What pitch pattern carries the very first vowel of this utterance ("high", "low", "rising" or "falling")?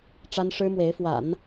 high